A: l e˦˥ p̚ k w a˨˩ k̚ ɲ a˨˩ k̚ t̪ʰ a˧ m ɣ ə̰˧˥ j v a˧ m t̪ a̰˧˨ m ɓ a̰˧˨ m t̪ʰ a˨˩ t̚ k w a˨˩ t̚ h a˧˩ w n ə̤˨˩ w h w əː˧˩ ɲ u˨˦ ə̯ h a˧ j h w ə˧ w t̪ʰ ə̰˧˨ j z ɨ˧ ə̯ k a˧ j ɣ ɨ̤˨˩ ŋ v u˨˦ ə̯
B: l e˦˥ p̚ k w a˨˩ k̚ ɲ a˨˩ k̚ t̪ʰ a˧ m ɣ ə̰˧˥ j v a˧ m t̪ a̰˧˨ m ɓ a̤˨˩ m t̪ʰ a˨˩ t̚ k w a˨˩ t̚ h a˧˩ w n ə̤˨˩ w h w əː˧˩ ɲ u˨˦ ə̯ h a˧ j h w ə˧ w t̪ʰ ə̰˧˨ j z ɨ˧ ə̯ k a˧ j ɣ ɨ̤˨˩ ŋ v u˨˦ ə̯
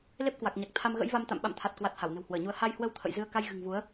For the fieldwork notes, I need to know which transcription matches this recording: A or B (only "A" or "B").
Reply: A